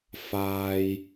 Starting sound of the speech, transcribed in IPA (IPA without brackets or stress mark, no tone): f